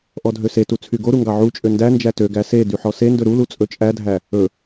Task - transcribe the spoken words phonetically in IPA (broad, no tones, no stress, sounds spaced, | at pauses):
ʔ ɔ dʱ ø s e t u t͡sʰ y ɡ o ɾ u ŋ ɡ ɑ ʕ u t͡ʃʼ ø n d æ n d͡ʒ æ t ø ɡ æ s e d y ħ ɔ s e n d ɵ ɾ u l u t͡sʼ ɵ t͡ʃʼ æ dʱ æ | ɵ